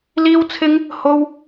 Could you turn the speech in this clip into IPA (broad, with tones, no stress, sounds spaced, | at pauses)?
l iː˥ w t͡sʰ ɪ˥ ŋ | h o˥ w